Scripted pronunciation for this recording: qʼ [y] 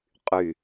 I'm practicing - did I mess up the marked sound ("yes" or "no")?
no